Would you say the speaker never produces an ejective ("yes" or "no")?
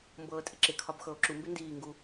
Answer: no